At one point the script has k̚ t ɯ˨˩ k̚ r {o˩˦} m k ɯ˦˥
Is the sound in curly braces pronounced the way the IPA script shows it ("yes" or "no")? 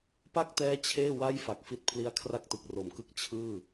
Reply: yes